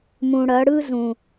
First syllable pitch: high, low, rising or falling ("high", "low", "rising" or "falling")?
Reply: low